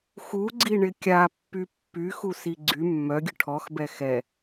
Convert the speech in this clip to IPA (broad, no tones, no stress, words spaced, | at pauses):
xuɡ͡ǀiɳɪ kʲapːy pːyxusi ɡ͡ǀy mːœɡʲʊ ʈʰɔxbɛ xɛ